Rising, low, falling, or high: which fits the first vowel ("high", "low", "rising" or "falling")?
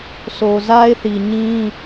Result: low